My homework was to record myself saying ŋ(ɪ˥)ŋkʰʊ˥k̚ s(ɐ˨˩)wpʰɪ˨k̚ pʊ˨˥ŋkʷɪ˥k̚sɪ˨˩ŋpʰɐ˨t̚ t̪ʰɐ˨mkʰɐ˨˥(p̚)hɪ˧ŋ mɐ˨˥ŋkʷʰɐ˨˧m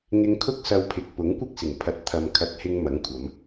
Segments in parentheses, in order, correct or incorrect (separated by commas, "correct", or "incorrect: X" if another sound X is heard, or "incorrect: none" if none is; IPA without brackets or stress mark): incorrect: ɪ˧, incorrect: ɐ˧, incorrect: t̚